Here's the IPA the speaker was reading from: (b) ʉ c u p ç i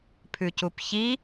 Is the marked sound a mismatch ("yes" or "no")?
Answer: yes